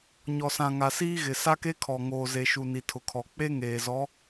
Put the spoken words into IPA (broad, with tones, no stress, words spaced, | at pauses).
ɲɔ˨sã˨ŋa˨ siː˦ɣɪ˨ sa˦ke˦kʰɔ˨ ŋoː˨ze˨ʃu˨ ni˨tʰʊ˨kʰɔ˨ k͡pe˦ ŋeː˨zɔ˨˦